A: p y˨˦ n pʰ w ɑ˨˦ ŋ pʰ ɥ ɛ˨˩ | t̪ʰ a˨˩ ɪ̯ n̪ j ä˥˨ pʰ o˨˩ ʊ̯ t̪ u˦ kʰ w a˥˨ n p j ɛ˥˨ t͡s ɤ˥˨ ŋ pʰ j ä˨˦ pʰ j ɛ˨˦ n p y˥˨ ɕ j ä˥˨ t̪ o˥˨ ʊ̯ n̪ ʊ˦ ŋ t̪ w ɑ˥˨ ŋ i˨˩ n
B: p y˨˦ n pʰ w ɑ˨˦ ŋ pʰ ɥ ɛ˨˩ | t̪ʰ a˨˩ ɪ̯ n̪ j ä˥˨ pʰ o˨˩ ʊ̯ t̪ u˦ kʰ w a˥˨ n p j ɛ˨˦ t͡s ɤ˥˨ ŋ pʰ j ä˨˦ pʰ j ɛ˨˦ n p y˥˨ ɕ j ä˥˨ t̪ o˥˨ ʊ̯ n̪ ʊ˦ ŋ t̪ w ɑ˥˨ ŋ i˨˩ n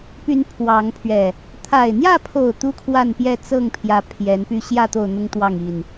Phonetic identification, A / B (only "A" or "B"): A